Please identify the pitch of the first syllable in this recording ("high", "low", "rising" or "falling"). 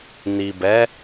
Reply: low